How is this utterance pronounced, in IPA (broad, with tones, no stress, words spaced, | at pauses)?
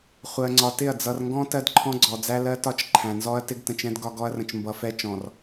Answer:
χʷɜ˨ŋ͡ǀɒ˨tɪ˦˨ɐ̯ d͡zʌ˨rŋɡɔ̃˦ tɜ˦dǃʰɔ̃˦ɡ͡ǀɔ˨ d͡zæ˦lɜ˦tɒ˦t͡ʃ ǃʰæ̃˨nzɔ˦ɐ̯ tɪ˦ɡtə̃˨t͡ʃɛ̃˦d ɡɒ˦ɡɔ˦ɐ̯rə̃˨t͡ʃ mbʌ˨fɛ˦ t͡ʃɔ̃˨r